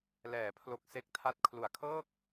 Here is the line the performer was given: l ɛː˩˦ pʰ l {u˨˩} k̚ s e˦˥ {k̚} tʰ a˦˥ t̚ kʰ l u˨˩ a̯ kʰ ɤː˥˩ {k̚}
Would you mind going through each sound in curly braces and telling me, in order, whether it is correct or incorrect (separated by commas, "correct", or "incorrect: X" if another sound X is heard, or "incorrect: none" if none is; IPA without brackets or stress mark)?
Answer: incorrect: o˨˩, correct, correct